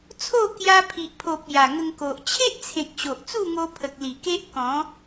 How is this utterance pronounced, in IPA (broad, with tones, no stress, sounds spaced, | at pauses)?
t͡sʰ o˥˧ k j a˧ pʰ i˨ ʔ pʰ o˨ p̚ j a˨˩ ŋ ə˧ ŋ k o˨ ʔ t͡ɕʰ e˦ ʔ t͡sʰ ẽ˨ k̚ ɕ o˨ ʔ t͡s u˥˧ ŋ o˧ pʰ ə˨ k̚ l i˨˩ k e˦ ʔ k ɔ̃˨˦